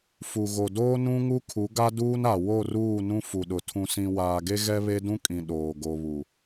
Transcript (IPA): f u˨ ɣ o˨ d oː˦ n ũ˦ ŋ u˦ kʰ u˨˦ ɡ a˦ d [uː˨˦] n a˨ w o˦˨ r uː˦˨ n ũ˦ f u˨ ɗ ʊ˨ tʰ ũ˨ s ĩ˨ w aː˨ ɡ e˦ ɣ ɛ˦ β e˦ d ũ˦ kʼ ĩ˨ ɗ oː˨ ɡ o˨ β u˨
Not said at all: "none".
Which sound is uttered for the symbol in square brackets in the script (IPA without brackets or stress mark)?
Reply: uː˦